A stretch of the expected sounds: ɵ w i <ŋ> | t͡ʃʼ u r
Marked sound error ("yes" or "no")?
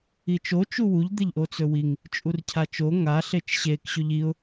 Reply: no